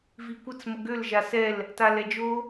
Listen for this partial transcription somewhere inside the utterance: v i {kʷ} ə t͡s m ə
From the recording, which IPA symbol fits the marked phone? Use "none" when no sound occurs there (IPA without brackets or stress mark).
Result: kʷ